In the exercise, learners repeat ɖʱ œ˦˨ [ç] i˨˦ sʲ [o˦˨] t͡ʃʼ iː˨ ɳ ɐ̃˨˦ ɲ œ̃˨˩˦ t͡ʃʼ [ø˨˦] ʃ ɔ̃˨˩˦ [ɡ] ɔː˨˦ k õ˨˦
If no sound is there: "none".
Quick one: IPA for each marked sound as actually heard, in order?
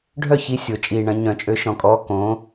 ç, o˨˩˦, ø˨˦, kʼ

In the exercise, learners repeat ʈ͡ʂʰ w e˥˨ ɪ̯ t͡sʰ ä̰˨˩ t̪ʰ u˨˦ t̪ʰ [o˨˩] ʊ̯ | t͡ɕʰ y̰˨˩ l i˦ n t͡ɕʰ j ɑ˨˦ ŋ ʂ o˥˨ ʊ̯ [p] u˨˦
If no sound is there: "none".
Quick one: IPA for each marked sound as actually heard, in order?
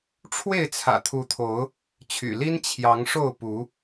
o˨˦, p

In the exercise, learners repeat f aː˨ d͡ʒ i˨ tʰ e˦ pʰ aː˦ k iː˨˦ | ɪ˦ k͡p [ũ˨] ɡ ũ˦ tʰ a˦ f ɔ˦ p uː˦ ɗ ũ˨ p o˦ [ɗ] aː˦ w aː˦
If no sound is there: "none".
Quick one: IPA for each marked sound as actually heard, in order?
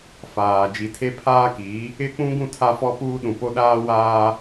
ũ˦, ɗ

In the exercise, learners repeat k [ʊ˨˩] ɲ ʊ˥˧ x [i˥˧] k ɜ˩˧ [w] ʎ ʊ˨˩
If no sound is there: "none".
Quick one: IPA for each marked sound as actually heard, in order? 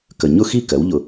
ə˨˩, i˥˧, w

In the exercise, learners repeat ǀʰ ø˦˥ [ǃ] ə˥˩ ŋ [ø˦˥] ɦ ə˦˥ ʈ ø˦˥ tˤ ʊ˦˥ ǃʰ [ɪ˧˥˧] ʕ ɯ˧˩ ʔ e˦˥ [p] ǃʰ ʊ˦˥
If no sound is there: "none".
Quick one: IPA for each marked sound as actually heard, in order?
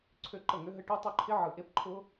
ǃ, ø˦˥, ɪ˦˥, p

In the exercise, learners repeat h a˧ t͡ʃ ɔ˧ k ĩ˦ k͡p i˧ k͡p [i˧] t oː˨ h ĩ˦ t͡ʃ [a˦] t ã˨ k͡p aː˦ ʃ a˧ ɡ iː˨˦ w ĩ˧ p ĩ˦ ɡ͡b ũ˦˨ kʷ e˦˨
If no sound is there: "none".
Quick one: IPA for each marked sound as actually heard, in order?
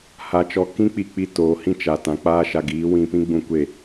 i˧, a˨

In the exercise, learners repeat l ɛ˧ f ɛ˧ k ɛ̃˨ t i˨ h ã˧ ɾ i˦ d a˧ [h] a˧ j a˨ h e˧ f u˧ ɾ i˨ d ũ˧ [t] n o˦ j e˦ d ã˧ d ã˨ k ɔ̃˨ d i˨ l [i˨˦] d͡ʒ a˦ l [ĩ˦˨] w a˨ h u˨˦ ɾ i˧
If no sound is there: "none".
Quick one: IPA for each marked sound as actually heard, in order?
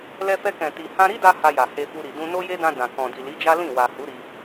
h, none, i˨˦, ĩ˦˨

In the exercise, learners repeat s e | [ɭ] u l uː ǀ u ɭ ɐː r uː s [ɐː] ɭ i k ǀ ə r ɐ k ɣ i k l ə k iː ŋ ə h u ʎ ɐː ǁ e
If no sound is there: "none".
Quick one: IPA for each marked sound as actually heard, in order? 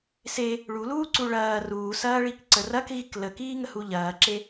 ɭ, ɐː

